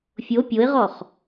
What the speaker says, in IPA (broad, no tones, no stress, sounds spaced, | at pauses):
fʲ o pʲ o ɪ̯ ʁ ɔ χ